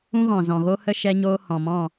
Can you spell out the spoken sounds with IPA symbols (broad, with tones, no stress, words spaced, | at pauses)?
ũ˦ɣɔ̃˨zɔ̃˨ɣo˦ hə˦ ʃɛ˦ɲoː˦ hɔ̃˨mɔ̃˦˨